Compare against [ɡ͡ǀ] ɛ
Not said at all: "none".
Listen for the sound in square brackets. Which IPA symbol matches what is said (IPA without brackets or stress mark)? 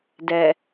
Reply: d